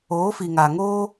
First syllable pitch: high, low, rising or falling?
rising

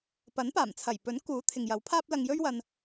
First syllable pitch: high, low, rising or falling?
rising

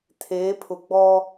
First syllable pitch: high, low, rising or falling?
rising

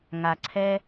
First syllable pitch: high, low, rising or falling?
low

